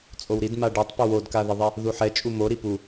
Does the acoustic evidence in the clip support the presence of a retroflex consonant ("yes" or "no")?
yes